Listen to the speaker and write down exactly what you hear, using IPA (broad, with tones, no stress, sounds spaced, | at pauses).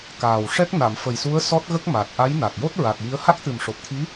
k aː˨˩ w ʂ ɛ˦˥ k̚ n a˨˩˨ m f ə˨˩ j s u˧˥ ə̯ s ɔ˦˥ t̚ ɣ ə˦˥ k̚ m a˨˩ t̚ ʔ a˧˥ j n a˨˩ k̚ j o˦˥ t̚ ɹ a˨˩ t̚ j i˧˥ ə̯ h a˦˥ k̚ t̪ ɨ˨˩ m ʂ o˨˩ p̚ t̪ʰ i˧˥